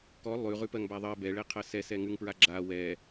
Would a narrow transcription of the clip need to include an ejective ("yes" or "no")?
no